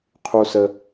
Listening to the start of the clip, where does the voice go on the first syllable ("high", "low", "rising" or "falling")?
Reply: high